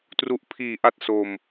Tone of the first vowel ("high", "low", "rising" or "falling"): low